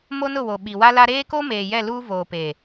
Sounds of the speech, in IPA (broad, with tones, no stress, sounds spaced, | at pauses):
m o˦ n ʊ˦˨ w o˨ ɓ i˨ w a˦ l a˦ ɾ eː˦ k o˦ m eː˨ j ɛ˦˨ l uː˦ v oː˨ p e˨